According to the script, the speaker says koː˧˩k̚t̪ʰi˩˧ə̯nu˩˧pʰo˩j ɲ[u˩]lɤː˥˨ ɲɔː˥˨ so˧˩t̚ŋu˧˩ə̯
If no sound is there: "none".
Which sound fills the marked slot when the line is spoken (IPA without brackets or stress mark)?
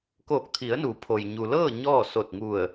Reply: u˩